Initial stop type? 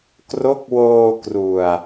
plain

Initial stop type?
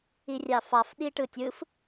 implosive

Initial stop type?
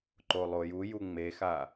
click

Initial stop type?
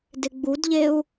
plain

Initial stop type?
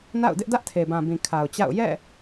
plain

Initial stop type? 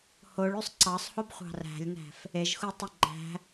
click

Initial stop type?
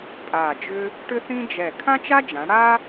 ejective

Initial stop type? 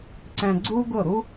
click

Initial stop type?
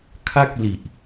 aspirated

